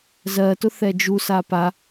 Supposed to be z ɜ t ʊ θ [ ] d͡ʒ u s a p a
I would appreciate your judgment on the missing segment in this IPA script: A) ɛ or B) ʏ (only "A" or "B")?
A